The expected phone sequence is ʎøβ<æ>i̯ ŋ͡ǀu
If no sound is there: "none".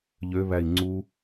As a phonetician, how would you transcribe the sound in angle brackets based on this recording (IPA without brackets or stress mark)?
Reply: æ